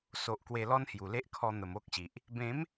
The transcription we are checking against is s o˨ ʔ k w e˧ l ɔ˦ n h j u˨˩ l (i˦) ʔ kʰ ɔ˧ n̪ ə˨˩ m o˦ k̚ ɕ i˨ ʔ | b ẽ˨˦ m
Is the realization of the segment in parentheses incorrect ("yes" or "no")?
yes